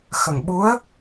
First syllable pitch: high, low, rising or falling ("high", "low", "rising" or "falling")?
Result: low